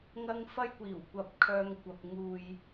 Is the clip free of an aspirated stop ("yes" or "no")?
no